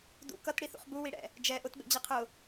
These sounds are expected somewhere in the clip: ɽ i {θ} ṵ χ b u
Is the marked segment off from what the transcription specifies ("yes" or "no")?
no